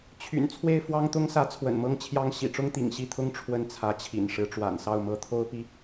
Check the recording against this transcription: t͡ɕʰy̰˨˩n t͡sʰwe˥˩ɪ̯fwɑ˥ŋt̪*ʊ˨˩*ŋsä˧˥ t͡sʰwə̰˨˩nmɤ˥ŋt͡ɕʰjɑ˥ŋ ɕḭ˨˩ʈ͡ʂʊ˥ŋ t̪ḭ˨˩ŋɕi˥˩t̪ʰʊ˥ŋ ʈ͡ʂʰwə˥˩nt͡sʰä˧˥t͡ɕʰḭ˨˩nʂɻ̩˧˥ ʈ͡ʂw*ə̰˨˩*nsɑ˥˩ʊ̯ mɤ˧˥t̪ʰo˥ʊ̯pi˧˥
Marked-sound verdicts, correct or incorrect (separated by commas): incorrect, incorrect